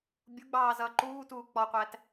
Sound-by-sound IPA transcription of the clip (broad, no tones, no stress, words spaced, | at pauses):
bʲuɡ͡bɑː zʌːǃuːtuː k͡pɔqʷæt